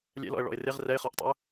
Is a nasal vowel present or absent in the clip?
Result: absent